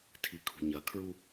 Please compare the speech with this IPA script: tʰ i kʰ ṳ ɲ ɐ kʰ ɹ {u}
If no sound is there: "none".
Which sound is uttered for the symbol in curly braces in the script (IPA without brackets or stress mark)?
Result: u